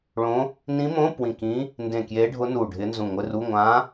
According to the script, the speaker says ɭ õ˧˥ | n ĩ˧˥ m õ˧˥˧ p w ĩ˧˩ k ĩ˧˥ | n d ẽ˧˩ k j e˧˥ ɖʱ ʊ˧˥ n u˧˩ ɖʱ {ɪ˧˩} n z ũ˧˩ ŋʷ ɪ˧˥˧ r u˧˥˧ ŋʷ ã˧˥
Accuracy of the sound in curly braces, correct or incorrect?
incorrect